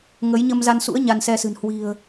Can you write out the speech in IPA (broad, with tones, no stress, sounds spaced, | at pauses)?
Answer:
ŋ ə˨˦ j ɲ ə˧ m z a˧ n s ṵ˧˥ ə̯ ɲ a˧ n s ɛ˧ s ɨ̤˨˩ n h w i̤˨˩ ə̯